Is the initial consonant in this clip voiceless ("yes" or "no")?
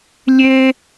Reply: no